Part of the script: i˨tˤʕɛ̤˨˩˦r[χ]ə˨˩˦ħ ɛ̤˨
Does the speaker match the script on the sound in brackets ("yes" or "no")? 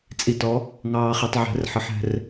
no